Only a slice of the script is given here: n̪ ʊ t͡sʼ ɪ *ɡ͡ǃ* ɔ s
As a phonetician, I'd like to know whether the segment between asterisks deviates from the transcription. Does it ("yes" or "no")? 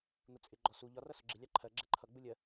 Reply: no